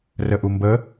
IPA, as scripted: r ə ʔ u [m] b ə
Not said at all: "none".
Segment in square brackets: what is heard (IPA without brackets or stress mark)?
m